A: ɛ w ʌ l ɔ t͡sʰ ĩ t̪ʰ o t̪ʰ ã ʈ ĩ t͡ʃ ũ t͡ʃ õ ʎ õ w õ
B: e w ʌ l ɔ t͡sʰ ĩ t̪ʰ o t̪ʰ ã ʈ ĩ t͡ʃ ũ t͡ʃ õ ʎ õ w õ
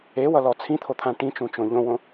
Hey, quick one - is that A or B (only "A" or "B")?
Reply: B